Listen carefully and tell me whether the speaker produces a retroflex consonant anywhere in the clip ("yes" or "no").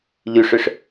yes